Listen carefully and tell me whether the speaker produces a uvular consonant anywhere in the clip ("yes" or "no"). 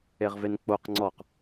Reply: yes